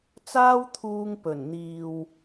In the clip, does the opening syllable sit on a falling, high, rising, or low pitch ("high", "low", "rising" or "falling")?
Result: high